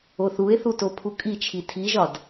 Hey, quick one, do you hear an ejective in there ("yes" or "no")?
yes